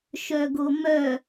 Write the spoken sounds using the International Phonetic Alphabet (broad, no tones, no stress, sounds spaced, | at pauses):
ʃ œ ɡ o m œ